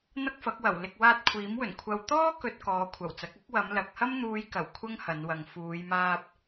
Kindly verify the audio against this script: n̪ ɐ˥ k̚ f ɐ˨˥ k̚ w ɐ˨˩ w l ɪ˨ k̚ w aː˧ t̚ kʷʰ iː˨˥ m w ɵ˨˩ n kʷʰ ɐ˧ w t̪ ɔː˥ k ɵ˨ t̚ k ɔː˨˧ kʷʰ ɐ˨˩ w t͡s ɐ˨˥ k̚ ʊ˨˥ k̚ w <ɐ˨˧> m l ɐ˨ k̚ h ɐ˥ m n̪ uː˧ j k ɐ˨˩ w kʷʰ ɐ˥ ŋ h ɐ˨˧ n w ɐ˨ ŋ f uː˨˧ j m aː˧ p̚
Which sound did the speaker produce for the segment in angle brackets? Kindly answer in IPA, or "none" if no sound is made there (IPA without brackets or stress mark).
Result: ɐ˨˧